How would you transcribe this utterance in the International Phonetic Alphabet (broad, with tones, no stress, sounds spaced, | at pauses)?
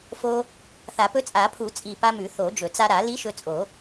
f o˧ | θ a˨˩˦ p ɵ˧˥ t͡sʼ a˨˩˦ pʰ u˨˩˦ t͡sʼ i˨˩ p a˧ m ʉ˨˩˦ θ o˨˩˦ d͡ʒ ɵ˨˩˦ t͡s a˧ ɾ a˨˩˦ l i˧˥ ʃ ɵ˧ t͡sʼ o˨˩˦